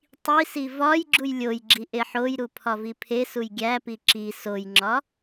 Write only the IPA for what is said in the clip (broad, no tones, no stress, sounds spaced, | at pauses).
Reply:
tˤ i s i v ɒ j ɡ͡ǁ u j lʲ o j ɡ͡ǁ i ʔ e ħ o j ɾ u pʰ ɒ v i pʰ e s u j ɡʲ æ p i ǁ i s o j ŋ͡ǁ ɒ